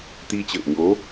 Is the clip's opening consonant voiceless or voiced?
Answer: voiceless